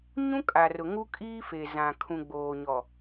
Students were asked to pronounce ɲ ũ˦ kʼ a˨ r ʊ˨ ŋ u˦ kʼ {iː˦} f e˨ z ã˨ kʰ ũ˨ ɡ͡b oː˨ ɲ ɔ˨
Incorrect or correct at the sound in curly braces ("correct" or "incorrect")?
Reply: correct